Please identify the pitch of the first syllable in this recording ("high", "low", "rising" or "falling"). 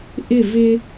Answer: falling